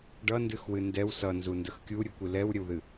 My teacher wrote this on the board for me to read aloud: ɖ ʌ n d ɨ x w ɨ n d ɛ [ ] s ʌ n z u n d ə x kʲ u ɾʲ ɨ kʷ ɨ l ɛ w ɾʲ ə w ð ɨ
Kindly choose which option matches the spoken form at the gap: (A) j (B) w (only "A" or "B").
B